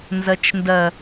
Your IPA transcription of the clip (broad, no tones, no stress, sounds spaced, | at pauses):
n z ɐ t͡ʃ n d ɐ